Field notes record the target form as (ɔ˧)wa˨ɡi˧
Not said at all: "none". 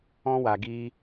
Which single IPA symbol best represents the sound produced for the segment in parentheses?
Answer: ɔ̃˧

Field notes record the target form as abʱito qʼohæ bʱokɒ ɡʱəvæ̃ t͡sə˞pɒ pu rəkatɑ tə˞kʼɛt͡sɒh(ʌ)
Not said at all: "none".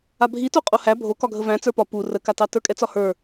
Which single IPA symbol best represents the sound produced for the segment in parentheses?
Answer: ə˞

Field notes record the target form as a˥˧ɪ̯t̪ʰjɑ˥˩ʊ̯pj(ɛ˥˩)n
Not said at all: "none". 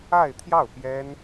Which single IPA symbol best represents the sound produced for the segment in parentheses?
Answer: ɛ˥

